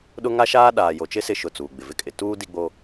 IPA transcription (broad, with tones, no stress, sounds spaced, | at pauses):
ɗ ʊ˦ ŋ a˦ ʃ aː˦ ɗ aː˨ j o˨ t͡ʃ ɪ˦ s ɪ˦˨ ʃ ʊ˦˨ t͡s uː˨ ɡ͡b ɪ˨ v ɪ˦ kʼ ɪ˨ t uː˦ d i˦ ɡ͡b o˦